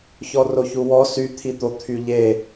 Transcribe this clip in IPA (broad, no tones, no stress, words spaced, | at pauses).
çɔroçuwɔ syt̪ʰit̪o t̪ʰyʎe